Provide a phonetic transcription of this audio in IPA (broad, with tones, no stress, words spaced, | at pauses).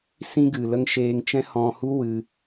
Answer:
sĩ˦ɡɨ˨lə˦ŋ ʃeː˧ŋ t͡ʃɛ̃˦hɔ̃˧hu˦ wɨ˧